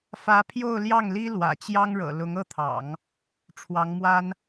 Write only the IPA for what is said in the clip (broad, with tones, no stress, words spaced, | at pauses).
fä˧˥pʰjo˥˧ʊ̯ljɑ˥˩ŋli˥ lwä̰˨˩t͡ɕjɑ˥ŋɻɤ̰˨˩ lʊ˧˥ŋɤ˥˩t̪ʰɑ̰˨˩˦ŋ | ʈ͡ʂʰwɑ˧˥ŋmwa˥n